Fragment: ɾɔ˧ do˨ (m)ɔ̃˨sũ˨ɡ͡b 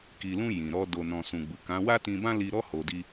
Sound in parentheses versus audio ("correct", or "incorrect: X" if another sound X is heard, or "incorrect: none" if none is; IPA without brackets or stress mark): incorrect: n